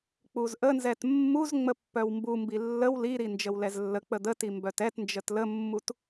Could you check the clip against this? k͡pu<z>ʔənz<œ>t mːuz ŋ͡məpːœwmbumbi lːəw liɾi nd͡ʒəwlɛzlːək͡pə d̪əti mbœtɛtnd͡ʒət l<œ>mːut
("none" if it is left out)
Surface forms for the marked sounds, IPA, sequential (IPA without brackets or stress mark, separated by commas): z, ɛ, ə